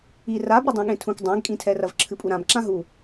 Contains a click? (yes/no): yes